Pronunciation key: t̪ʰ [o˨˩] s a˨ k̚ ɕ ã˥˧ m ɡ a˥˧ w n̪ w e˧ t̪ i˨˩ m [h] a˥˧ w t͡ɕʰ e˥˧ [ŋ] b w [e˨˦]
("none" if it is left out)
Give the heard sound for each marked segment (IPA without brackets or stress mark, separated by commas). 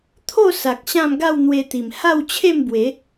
o˥˧, h, m, e˨˦